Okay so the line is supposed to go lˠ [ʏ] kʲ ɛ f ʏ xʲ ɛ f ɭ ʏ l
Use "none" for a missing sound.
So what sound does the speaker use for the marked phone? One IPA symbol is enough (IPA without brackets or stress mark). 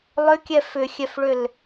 ʏ